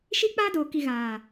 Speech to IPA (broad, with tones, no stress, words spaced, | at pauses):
ʃi˦k͡paː˦doː˨ki˨ ɣaː˨